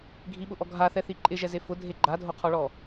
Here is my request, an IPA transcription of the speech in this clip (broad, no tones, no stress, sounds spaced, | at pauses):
ɡʱ i ɓ ʊ ʔ ɔ ɡʱ a θ ɛ θ i ǃʼ ɪ ʒ ɛ z e f ʊ dʱ e ɡ͡ǃ a dʱ o qʰ ɔ ɭ ɔ